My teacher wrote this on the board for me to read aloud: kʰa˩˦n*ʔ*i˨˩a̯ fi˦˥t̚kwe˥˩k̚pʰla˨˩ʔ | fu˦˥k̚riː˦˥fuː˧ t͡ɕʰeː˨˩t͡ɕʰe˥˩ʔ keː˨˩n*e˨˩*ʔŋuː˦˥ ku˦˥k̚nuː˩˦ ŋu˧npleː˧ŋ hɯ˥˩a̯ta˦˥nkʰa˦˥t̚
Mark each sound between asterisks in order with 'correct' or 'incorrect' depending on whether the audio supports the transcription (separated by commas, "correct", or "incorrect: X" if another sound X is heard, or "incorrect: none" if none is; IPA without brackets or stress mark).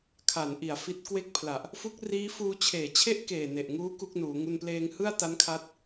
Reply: correct, correct